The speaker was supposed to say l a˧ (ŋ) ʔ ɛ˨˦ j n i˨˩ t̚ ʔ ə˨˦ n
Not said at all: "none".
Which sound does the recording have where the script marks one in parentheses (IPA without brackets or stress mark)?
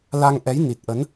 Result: ŋ